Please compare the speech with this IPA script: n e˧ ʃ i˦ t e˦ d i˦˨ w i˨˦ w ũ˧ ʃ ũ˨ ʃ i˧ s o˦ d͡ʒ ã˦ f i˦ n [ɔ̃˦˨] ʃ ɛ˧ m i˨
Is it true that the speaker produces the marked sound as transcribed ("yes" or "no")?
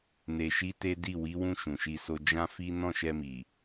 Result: yes